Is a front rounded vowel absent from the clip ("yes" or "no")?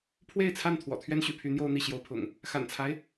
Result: no